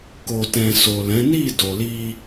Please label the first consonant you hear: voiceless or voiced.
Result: voiceless